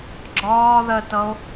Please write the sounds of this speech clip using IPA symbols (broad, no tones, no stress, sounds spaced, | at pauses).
ɡ͡ǁ ɒː ð ɜ t ʌ o̯